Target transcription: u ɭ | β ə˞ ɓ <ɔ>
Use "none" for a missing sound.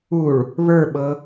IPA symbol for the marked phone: ɤ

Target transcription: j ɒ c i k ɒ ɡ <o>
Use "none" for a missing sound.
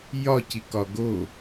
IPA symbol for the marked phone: o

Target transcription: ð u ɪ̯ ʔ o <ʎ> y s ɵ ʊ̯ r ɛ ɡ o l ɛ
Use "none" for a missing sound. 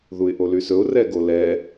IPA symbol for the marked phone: l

